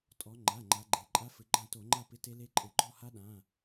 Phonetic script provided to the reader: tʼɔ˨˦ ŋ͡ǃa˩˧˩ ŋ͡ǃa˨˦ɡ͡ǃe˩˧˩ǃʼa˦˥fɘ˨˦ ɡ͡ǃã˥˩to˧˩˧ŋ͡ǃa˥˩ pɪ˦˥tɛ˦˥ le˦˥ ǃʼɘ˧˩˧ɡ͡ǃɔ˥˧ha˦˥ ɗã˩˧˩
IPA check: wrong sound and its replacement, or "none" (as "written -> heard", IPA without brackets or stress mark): ɛ˦˥ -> e˦˥